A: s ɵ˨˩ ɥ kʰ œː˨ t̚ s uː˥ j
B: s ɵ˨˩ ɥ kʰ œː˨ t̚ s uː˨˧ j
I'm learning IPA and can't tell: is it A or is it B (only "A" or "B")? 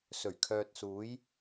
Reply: B